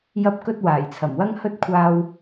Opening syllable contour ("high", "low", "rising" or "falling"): high